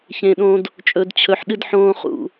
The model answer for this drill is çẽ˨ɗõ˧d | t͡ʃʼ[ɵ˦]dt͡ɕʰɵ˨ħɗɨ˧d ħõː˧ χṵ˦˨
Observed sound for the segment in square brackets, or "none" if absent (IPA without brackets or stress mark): ɵ˨